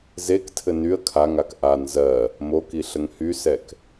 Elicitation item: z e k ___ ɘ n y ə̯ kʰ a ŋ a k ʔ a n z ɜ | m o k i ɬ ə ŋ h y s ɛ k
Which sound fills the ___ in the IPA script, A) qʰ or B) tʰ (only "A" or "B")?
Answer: B